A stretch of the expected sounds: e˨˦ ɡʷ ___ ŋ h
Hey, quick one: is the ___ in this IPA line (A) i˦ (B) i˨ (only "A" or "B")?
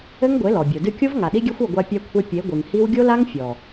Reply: B